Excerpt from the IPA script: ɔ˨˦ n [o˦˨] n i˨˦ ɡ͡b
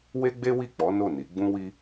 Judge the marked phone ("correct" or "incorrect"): correct